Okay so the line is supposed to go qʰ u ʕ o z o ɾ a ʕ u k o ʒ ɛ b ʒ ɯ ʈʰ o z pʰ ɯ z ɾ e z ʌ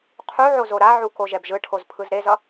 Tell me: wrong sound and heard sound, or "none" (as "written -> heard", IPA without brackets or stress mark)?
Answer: none